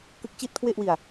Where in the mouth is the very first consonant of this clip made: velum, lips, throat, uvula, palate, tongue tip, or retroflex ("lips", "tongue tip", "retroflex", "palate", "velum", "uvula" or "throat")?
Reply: velum